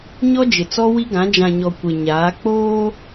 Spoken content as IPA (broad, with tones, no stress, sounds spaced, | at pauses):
ɲ ɔ˦ d͡ʒ ɪ˨ t͡s ɔ˦ w i˦ ɡ ã˨˦ d͡ʒ ã˨ ɲ ɔ˨ kʷ e˨ ɲ aː˨˦ k͡p oː˦